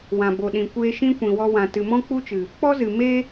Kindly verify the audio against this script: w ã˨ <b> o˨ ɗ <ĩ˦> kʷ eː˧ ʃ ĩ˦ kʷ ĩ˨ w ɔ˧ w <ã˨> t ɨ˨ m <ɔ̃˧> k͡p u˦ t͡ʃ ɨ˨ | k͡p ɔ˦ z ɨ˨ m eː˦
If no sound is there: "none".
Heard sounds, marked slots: b, ĩ˨, ã˨, ɔ̃˦

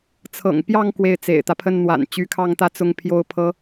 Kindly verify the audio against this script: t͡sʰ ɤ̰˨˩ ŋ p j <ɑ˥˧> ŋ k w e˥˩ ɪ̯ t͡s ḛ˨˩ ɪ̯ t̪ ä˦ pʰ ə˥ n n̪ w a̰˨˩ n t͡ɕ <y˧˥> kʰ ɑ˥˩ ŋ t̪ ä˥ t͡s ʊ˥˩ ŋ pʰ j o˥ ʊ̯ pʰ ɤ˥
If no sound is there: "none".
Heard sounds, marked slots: ɑ˥˧, y˧˥

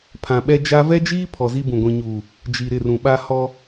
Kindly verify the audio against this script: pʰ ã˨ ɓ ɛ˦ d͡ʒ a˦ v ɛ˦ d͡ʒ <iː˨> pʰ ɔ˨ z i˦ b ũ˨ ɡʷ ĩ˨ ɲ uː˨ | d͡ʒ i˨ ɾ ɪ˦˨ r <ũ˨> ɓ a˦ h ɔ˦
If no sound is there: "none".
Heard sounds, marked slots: iː˦, ũ˨

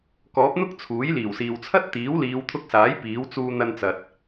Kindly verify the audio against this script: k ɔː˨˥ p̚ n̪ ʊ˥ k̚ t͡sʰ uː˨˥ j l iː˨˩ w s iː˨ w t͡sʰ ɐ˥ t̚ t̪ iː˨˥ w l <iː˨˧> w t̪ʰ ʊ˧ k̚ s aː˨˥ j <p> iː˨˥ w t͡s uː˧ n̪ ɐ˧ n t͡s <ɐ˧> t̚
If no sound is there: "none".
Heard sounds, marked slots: iː˨˧, p, ɐ˨

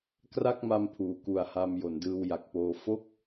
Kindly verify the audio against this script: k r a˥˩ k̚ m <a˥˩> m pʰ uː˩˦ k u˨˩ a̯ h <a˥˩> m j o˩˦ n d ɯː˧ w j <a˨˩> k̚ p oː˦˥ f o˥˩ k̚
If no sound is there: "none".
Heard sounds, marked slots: a˧, a˧, a˨˩

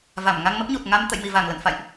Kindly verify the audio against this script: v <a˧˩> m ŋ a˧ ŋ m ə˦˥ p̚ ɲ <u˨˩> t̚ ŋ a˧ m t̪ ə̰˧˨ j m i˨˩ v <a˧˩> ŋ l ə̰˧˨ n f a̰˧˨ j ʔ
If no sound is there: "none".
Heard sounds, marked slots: a˧˩, u˨˩, a˧˩

